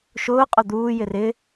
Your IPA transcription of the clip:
ʃ ʊː qʼ ʊ d̪ uː j ɪ r ɪ

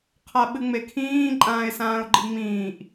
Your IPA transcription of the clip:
qʰ a ɓ ɨ ŋ͡m e kʰ ĩː ǃʼ ãː ɪ̯ s ãː ʊ̯ ɡ͡ǃ i ŋ͡m ĩː ʔ

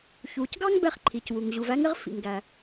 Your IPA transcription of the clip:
ç uː˩ c ɡ ɑ˥ ŋ b ɛ˥ χ ǃʰ i˩ c w u˩ ŋ ʑ u˩ v æ˥ ŋ ɪ˥ ʁ f ḭ˩ ŋ ɡ æ˩

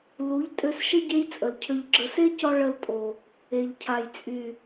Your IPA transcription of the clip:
l u˨˦ ʎ tʼ ø˧ s ʃ ə˦ ɟ e˦ j t͡sʼ ə˨ l cʰ ø˨ ʎ ɡ͡ǁ ə˨ s e˦ c ɔ˧ ɭ ə˧ l tʼ o˨ | e˨ ʎ cʰ a˨ j t͡sʼ y˨

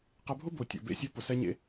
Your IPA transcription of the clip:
q ɛ˧ bʱ ʊ˦ b o˨ tʲ o̰˨ b ḛ˧ sʲ o˧ p ʊ˨ s ɛ˧ ɲ ḛ˧

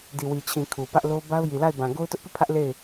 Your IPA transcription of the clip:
d i˨ w i˨ t͡ɕʰ ĩ˨ kʰ u˨ p ä˦ ʔ l o˦ b a˦ ʊ̯ j i˨ l a˦˨ ɪ̯ b ã˨ ɡ o˦ ʊ̯ t ʊ˦ ʔ p i˦˨ pʰ ä˦ ʔ l e˦˨ ɪ̯

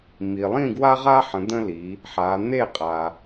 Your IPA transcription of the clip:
m i˨ lˠ ĩ˥˧ ɡ w a˥ ʁ a˥ ħ ə̃˨˦ d̪ ə̃˥ l i˨˦ | ħ a˨˦ n̪ e˥˧ qʼ a˨

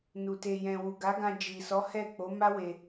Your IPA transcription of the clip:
n u˨ t e˨ j ɛ̃˨ w u˨ ɡ a˨˦ ɡ ã˧ d͡ʒ i˨ s ɔ˨˦ h ɛ˦˨ k͡p o˨˦ m a˦ w e˧

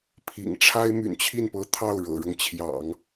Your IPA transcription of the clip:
pʰ ḭ˨˩ ŋ ʈ͡ʂʰ a˥ ɪ̯ m y̰˨˩ n t͡ɕʰ i˥˩ n p ɤ˧˥ t̪ʰ ɑ˥˩ ʊ̯ ɻ ɤ̰˨˩ ɻ ɤ˦ ŋ t͡ɕʰ j ɑ̰˨˩˦ ŋ

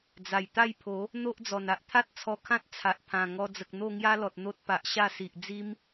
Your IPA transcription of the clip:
d͡z a˨˩ j t̪ a˥˧ j pʰ o˨˦ | n̪ o˦ ʔ d͡z ɔ˨˩ n a˦ ʔ t̪ʰ a˦ t̚ t͡sʰ ɔ˧ kʰ ã˦ t̚ t͡sʰ a˨ ʔ pʰ ã˨˩ ŋ ɔ˧ d͡z ə˨ k̚ n̪ o˥˧ ŋ j a˦ l ɔ˨ t̚ n̪ o˦ t̚ p a˨ ʔ ɕ a˥˧ s i˨ ʔ d͡z i˦ m

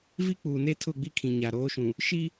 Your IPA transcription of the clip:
v i˦ k͡p uː˨ n e˦ tʰ ʊ˦˨ ɡ͡b i˦ kʰ ĩ˨ ɲ a˨ ɾ oː˨˦ ʃ ũ˨ | ʃ i˦

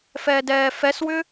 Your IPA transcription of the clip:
f ɛː d ɛː f ɛ s w ʏ

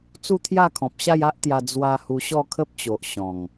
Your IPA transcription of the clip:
t͡s u˥˧ t̪ʰ j a˥˧ kʰ ɔ̃˨ p̚ ɕ a˥˧ j a˦ ʔ t̪ j a˧ d͡z w a˧ h u˧ ɕ ɔ˥˧ kʰ ə˦ p̚ t͡ɕ o˨ ʔ ɕ ɔ̃˨˩ ŋ

